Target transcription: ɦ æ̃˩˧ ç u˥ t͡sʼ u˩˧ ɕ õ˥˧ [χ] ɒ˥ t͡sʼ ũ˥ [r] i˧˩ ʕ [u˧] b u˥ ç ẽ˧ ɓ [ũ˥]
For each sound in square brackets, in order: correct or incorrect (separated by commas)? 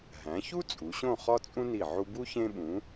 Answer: correct, incorrect, correct, incorrect